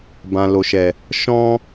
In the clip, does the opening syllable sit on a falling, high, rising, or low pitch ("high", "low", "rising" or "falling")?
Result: low